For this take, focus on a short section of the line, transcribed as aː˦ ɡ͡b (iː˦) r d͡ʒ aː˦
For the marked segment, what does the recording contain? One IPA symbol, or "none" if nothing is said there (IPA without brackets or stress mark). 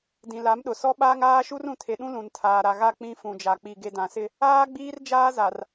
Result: iː˦